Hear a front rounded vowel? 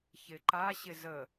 no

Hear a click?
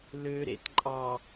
yes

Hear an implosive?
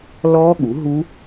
yes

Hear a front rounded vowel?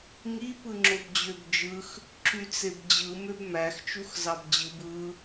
yes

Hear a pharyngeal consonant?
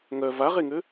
no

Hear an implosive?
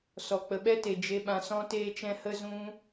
yes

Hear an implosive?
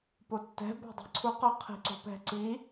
no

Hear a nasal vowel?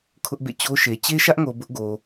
no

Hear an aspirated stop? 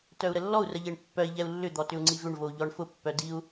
no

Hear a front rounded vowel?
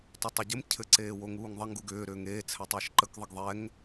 yes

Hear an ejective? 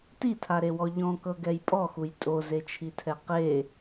yes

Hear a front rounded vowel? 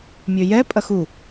yes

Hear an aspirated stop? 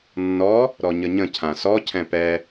yes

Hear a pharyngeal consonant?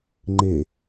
no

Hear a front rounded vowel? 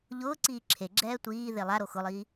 no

